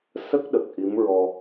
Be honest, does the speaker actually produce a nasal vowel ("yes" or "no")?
no